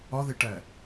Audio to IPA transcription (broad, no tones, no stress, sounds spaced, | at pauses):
ɒ ð e ʈ æ